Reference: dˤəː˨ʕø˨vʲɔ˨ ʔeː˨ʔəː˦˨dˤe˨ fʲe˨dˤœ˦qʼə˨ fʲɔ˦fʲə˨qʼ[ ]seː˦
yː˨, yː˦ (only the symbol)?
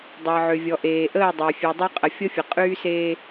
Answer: yː˦